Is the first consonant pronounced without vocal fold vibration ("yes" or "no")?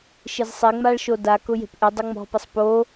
yes